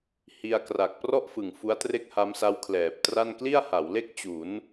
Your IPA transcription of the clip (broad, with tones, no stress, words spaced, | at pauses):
hi˧a̯kra˨˩k̚ prɔ˥˩ʔfɯ˨˩ŋ fu˦˥a̯tre˥˩k̚ha˦˥msa˦˥w kʰlɛː˨˩p̚tra˥˩n kli˥˩a̯ha˩˦wle˥˩k̚ t͡ɕu˩˦n